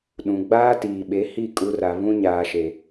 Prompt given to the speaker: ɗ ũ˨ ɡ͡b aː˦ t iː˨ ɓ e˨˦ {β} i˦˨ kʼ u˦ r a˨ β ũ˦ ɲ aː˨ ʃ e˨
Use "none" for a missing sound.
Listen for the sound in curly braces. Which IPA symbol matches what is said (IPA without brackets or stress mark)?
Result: h